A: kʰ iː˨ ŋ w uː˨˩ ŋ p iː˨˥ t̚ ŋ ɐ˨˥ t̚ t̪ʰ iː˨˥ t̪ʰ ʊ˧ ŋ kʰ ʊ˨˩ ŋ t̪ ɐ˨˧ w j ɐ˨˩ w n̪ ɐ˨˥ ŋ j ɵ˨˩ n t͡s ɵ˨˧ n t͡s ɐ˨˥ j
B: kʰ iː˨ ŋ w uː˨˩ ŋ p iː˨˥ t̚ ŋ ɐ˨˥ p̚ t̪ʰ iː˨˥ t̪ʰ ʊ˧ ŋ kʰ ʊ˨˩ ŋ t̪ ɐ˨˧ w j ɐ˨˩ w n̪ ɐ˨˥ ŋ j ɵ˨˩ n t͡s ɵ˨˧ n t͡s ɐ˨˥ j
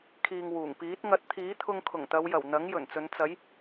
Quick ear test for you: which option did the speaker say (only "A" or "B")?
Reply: A